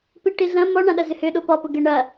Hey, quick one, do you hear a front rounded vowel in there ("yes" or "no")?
yes